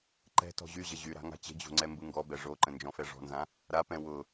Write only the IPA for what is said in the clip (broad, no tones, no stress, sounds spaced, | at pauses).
ǃ ɛ̤ t ɔ̤ ʑ y ʑ ə ʑ y ɾ a̤ ŋ a̤ t͡ɕ ə̤ d͡ʑ o̤ ŋ͡ǀ ɛ m b ɯ ŋ ɡ ɔ b ɛ ʐ o ǃ ə̃ n d͡ʒ ɔ̃ f ɛ ʐ ɔ̤ n z ã | ɾ a p ɛ̃ w ʊ